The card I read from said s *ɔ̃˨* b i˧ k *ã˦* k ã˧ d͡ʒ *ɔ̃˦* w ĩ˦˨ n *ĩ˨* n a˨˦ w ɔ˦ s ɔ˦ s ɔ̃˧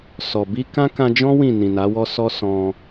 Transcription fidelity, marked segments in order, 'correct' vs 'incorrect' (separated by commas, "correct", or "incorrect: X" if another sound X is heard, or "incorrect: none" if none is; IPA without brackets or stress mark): incorrect: ɔ˨, correct, correct, correct